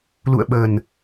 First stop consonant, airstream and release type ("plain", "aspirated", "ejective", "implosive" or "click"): implosive